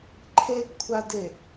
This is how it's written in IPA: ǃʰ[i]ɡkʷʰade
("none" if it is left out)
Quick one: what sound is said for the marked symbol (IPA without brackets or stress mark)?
e